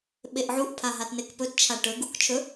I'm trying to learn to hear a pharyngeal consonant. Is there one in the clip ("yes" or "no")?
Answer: yes